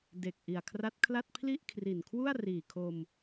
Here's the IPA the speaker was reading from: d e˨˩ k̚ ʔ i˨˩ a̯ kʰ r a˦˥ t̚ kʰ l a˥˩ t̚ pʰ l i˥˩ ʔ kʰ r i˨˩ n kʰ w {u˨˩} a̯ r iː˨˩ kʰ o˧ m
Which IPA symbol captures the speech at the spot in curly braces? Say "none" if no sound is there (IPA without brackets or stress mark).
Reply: u˥˩